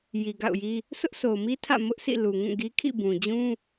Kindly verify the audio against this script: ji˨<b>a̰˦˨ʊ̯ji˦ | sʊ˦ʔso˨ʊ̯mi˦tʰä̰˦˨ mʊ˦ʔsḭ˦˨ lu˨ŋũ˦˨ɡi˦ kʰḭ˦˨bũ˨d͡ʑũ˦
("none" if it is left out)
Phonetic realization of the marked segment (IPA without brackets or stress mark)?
ɡ